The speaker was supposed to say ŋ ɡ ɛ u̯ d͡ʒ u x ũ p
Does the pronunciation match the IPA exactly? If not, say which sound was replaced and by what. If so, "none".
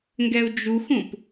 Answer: none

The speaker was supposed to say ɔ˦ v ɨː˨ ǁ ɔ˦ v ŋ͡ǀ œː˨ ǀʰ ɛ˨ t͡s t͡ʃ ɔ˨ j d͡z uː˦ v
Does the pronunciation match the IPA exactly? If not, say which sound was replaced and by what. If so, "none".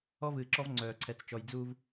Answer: none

